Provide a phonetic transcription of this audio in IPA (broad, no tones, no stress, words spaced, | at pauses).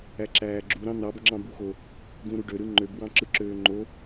æǁæːɡ͡ǁu ɾɑ̃n̪ɑb ŋ͡ǁɑ̃buxo | ɡũɾuɖø ɾɯŋ͡ǃøb wɑ̃ǁɯǁøːŋ͡ǃo